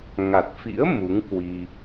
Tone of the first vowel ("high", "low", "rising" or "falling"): low